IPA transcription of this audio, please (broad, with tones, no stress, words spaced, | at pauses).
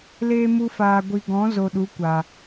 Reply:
leː˧mu˧faː˨ ɡʷi˨ɡɔ̃˨˦zo˨ ɗu˨˦kʷa˨